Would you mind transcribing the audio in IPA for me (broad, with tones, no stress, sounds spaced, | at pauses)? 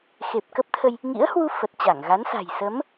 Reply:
x e˨˩ p̚ k ə˦˥ p̚ t̪ʰ ə˧ j | ŋ ḭ˧˥ ə̯ h w u˧ f ə˨˩ t̚ t͡ɕ a˧˩ ŋ ɣ a˨˦ n s a̤˨˩ j s ə˨˦ m